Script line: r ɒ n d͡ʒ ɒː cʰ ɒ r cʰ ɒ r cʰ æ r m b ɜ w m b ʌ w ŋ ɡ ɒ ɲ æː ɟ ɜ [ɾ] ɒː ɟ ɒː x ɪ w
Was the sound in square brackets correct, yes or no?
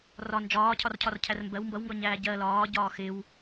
no